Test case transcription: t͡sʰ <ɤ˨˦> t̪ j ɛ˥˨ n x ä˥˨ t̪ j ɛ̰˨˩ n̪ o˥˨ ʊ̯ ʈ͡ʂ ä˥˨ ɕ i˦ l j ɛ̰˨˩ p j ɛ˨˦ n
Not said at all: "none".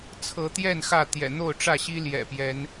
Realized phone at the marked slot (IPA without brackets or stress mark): ɤ˨˦